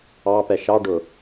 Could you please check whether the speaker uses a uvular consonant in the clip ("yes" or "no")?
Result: no